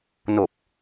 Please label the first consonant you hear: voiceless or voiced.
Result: voiced